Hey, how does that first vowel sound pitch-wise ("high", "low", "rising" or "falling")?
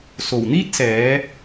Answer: low